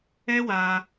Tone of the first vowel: high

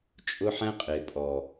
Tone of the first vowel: high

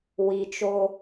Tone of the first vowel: low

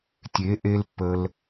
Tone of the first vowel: rising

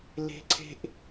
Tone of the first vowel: high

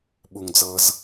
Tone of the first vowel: low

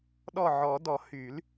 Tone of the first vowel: falling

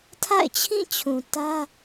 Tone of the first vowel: falling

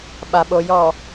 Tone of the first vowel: low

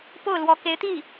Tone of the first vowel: falling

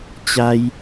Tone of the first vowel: high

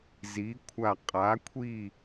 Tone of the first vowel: rising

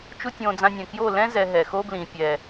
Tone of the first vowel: high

